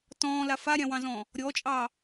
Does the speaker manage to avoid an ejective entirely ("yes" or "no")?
no